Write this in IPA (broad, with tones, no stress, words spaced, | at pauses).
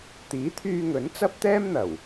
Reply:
t̪iː˨˥t̪ʰyː˧ŋɵ˨˥n t͡sɐ˥p̚t̪ɛː˥mn̪ɐ˨˩w